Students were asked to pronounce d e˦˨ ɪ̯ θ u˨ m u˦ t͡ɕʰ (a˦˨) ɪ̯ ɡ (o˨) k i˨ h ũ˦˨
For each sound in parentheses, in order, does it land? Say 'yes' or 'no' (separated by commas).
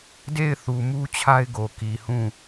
no, yes